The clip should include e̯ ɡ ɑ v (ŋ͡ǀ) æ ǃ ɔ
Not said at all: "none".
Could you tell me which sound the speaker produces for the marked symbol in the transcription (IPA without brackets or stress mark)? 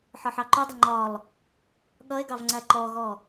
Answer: ŋ͡ǀ